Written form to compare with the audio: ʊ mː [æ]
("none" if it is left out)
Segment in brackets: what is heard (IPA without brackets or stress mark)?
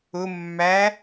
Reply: æ